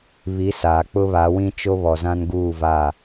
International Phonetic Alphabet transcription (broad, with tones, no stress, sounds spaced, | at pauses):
β i˨˦ s aː˨ k͡p ʊ˦ β a˨˦ w ĩ˦ t͡ʃ o˦ β ɔ˨ z ã˦ n ɡ uː˦˨ v a˦˨